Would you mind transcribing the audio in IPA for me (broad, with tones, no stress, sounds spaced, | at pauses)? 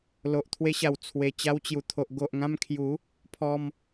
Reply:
l o˨ ʔ t̪ʰ w e˧ ɕ a˨˩ w t͡sʰ w e˨˩ t͡ɕ a˧ w t͡ɕ j u˨˩ t̪ʰ o˨ ʔ ɡ o˨ ʔ ŋ ã˧ m kʰ j u˨˦ | pʰ ɔ˧ m